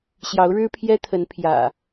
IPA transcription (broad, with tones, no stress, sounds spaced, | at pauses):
ɕ j ɑ˨˦ ʊ̯ ɻ ɻ̩˦ pʰ j ɛ˦ t̪ʰ ə˨˦ n pʰ j ä̰˨˩